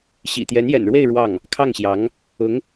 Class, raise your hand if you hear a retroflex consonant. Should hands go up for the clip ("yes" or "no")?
yes